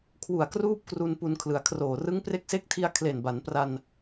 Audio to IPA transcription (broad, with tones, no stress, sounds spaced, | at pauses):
kʰ w u˨˩ a̯ k r uː˥˩ p̚ k r u˧ n p u˧ n kʰ l ɯ˩˦ a̯ kʰ r oː˨˩ r ɯ˦˥ ŋ p r e˦˥ k̚ s e˦˥ k̚ tʰ i˧ a̯ kʰ l e˨˩ n b a˩˦ n p r a˧ n